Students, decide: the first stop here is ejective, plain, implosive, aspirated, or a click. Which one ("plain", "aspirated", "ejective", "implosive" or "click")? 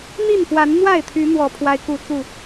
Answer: aspirated